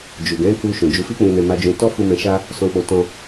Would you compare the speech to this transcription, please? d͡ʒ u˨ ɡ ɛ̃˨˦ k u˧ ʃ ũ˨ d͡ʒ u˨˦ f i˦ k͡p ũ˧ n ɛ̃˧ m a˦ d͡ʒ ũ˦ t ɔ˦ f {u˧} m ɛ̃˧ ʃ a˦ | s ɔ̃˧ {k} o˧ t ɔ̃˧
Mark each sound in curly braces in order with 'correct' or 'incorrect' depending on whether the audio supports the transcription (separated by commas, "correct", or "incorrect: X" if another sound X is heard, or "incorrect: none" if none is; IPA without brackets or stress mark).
correct, incorrect: k͡p